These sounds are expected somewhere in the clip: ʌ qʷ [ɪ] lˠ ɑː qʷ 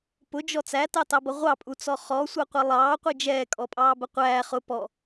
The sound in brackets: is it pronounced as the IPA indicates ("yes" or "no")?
yes